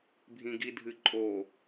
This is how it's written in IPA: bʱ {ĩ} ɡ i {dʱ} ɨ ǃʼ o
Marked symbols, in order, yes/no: yes, yes

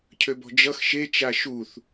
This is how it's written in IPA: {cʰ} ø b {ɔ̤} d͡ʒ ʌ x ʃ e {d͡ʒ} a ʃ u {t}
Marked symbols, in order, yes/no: yes, yes, no, no

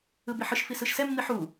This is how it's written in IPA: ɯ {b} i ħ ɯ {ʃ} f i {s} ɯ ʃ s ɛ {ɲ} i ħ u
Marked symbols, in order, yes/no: yes, yes, yes, no

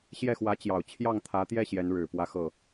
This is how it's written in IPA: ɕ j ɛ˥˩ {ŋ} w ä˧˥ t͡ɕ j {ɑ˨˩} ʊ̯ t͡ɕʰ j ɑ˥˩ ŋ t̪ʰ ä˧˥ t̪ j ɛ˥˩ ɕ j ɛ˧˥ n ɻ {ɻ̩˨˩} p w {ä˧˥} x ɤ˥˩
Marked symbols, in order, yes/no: no, yes, yes, no

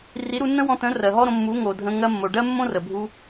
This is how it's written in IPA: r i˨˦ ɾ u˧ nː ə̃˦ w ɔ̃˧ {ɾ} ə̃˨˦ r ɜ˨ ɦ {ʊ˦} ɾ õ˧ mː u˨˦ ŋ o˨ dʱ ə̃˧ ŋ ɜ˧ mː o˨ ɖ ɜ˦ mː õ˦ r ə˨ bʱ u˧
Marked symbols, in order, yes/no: no, no

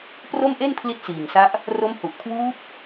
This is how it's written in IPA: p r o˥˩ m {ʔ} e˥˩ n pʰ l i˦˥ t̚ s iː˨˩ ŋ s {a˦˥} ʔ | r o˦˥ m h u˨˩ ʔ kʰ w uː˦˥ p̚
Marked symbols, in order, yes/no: yes, yes

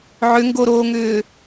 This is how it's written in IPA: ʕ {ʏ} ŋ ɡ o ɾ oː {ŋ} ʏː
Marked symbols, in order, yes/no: yes, yes

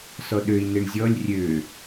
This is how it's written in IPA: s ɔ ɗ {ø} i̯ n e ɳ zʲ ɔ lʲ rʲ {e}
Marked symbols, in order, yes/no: yes, no

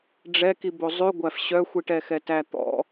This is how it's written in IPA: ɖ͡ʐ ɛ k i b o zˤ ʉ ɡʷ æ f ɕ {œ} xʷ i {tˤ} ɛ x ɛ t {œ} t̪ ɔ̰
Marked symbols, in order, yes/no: yes, no, no

